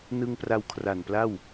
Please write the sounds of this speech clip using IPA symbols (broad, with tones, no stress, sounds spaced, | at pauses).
n ɯ˧ ŋ p r a˧ w kʰ r a˨˩ n p l a˥˩ w